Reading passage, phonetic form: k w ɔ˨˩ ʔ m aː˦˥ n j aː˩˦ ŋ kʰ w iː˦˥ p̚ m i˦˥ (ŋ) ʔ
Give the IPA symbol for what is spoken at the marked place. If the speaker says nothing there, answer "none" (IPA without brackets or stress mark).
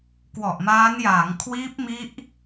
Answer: none